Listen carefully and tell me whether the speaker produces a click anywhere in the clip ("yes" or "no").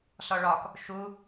no